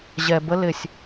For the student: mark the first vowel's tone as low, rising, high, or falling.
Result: low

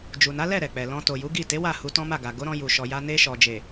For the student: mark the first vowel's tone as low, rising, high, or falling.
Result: low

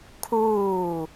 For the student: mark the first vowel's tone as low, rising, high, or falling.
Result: falling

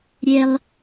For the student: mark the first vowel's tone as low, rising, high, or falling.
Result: high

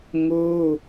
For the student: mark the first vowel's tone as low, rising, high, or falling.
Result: high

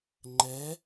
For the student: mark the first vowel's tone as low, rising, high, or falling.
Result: rising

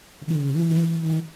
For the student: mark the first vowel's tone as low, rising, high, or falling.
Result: low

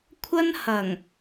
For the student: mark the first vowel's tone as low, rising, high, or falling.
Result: high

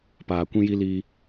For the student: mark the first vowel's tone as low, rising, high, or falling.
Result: low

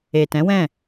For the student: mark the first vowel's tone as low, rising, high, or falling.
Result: low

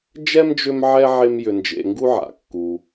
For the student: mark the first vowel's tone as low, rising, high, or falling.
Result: high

